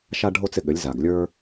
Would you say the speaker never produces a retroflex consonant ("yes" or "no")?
no